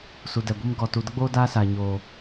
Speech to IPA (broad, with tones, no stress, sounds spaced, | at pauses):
s u˨ d ɛ˨ ɡʷ i˦ m ɡ ɔ˨ t u˨ d ə˦ ɡ͡b oː˦ d aː˦ s a˨ ɲ oː˨